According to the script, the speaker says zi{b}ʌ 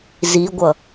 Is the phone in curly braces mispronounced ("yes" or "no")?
yes